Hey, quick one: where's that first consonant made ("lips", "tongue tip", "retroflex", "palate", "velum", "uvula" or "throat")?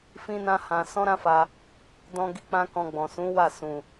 lips